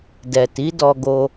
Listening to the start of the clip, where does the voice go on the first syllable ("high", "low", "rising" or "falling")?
low